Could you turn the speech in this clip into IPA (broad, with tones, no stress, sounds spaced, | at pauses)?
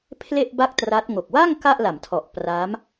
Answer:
pʰ l e˥˩ ʔ b a˥˩ k̚ t r a˦˥ t̚ ŋ o˨˩ k̚ w a˥˩ ŋ k a˥˩ ʔ l a˩˦ m tʰ ɔ˨˩ ʔ p r a˦˥ m